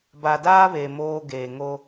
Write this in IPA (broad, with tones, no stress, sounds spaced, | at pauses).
b a˨ d aː˦ β e˨ m oː˦ ɡ eː˨ ŋ o˦